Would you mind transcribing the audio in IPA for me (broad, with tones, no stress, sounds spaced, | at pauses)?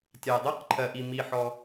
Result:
tʲ a˨ dˤ ɜ˦˥ q ǃʰ ɜ˨ ʔ i˨ m i˨ ħ ɔ˨